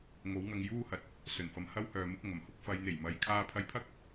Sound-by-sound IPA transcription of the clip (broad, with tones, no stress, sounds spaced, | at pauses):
ŋ o˨˥ w ŋ ɐ˧ ŋ j uː˥ h ɐ˨ t̚ | s ɵ˨˩ n f ɐ˨ m h ɐ˥ w h œː˨ m ɪ˨˥ k̚ ŋ ɐ˨˩ m h ʊ˥ k̚ f ɐ˨ j n̪ e˨˩ j m ɐ˨ j kʰ aː˧ pʰ ɐ˧ j pʰ ɐ˥ k̚